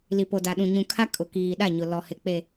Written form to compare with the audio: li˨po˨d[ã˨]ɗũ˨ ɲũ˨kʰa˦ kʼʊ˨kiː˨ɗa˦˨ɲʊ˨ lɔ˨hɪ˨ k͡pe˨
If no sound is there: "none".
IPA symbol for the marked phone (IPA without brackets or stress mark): a˨